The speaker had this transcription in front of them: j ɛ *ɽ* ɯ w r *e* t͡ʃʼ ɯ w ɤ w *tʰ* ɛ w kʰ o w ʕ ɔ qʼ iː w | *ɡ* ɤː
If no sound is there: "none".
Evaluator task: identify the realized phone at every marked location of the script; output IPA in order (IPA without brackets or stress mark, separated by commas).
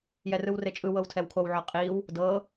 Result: r, e, tʰ, d